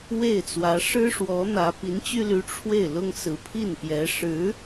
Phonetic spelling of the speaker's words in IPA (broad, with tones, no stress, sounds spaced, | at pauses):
w e˥˩ ɪ̯ t͡s w ä˧˥ ʂ ɻ̩˥ ʂ w ɔ˧˥ n̪ ä˧˥ p i˧˥ n t͡ɕ y˥ l y˧˥ ʈ͡ʂʰ w e˥˩ ɪ̯ l ʊ˥ ŋ s ɹ̩˧˥ pʰ i˥˩ n p j ɛ˧˥ ʂ ɻ̩˧˥